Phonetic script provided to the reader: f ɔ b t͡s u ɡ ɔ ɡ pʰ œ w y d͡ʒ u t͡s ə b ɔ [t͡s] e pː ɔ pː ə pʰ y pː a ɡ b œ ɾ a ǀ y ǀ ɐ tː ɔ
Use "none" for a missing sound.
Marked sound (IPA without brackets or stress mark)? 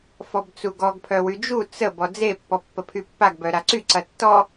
d͡z